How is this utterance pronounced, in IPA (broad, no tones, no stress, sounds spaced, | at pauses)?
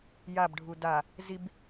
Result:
j a b ɖʱ u d a | z i b